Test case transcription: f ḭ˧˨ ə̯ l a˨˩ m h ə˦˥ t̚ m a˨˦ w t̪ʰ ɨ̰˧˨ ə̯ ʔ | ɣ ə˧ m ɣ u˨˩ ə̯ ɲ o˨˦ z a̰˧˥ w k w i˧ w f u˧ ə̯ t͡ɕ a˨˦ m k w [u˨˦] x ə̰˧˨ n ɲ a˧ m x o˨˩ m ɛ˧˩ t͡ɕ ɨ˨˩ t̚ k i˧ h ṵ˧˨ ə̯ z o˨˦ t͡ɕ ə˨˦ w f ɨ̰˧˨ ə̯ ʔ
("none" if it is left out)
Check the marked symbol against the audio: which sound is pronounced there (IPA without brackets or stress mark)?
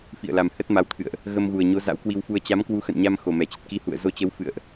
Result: u˨˦